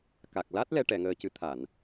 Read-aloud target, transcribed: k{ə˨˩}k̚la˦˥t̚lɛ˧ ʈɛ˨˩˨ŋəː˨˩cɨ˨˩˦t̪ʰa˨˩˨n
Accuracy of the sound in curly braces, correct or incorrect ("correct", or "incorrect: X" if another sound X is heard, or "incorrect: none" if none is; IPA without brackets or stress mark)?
incorrect: a˨˩